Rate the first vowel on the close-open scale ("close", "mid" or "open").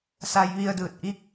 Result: open